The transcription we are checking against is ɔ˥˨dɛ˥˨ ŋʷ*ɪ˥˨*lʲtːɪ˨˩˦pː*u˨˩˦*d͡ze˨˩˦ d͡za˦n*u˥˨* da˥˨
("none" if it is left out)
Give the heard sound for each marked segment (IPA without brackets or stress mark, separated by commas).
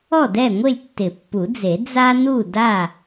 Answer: ɪ˥˨, u˨˩˦, u˥˨